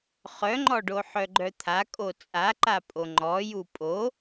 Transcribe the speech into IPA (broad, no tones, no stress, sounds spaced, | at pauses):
χ œ ŋ͡ǃ ɔ ɖ o ħ œ ɡ͡ǃ œ t̪ʰ a kʼ o t͡sʼ a ǃ a pʼ o ŋ͡ǃ ɔ j u pʼ o